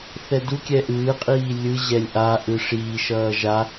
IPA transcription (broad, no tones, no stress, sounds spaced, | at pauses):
θ ɛ d u kʲ ɛ ʔ ɯː qʼ iː lʲ ɯ ʑ ɛ lʲ ʔ a ʔ ɯ ʂ iː ʃ ʌː ʒ a